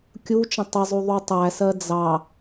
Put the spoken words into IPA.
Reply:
kʲ u t͡ʃ ə̃ tˤ ɪ zˤ u ðˤ u tˤ æ s ɜ d͡z ɑ

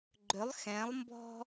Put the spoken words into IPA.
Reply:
ɡ͡ǃ ʏ lˠ x ɛ̃ lˠ m b ɔ̤

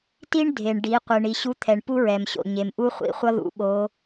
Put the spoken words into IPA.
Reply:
t i˥ ɳ dʱ e˩ ɳ ɖ i˩˧ qʷ ɯ˩ ɳ i˩ ɕ u˧˥ t̪ʰ ɛ˩ ɳ p u˥ ɹ ɛ˩ m ɕ o̰˩ ɲ e˩ m ʔ u˥ χʷ ḭ˩˧ χʷ ʌ˥ ð ṵ˩˧ ɓ o˧˥

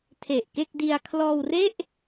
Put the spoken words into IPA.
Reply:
tʰ e˨˩ ʔ k e˥˩ k̚ d i˧ a̯ kʰ l ɔː˧ w r e˥˩ ʔ

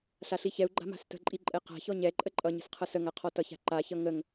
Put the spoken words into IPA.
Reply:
ɬ a ɬ i ç ɛ u̯ ɡ͡ǃ a̤ m a̤ s t ə̤ ǃʼ i ǃʼ ɛ q a̤ ç ɔ ɲ ɛ ǃʼ ə ǃʼ ʌ ɲ ə̤ s qʰ ʌ s ə ŋ a qʰ ɔ t ʌ ç a̤ ǃ a ç ʌ ŋ ə ŋ

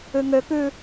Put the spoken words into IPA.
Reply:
ʉ ŋ ø k ʉ

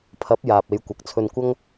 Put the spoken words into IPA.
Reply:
pʰ ɐ˨˥ p̚ j aː˨ p̚ e˨˧ j kʷ ɐ˨ k̚ t͡sʰ ɵ˧ n kʷ ɐ˥ ŋ

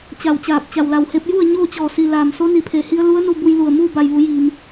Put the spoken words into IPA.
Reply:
t͡ɕ a˧˩ w t͡ɕ aː˧˩ p̚ t͡ɕ a˩ w l a˩ w h e˧ p̚ j u˥˨ ə̯ ɲ oː˥˨ t͡ɕ ɔː˧˩ s i˩ l aː˩ m s o˧˥ n i˩ pʰ e˩ h i˧ ə̯ l u˧˥ ə̯ n u˧ b u˧ j l u˧˩ ə̯ m uː˥˨ b a˧˩ j ʋ u˩˧ j iː˩ m

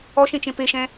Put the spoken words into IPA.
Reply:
ɔ ʃ ẽ t͡ʃ ẽ p e ʃ ɛ̃

